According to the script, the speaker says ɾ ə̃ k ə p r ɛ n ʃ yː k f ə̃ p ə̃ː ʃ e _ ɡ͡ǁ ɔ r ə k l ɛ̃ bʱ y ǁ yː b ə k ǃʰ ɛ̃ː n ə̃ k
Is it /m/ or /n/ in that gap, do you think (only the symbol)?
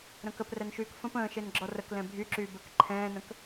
n